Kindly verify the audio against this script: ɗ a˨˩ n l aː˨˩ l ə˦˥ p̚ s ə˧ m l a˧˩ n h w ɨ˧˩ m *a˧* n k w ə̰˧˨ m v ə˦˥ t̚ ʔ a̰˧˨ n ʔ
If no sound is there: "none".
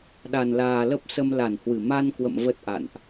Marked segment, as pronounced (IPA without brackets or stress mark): a˧